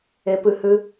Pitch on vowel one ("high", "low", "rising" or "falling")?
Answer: low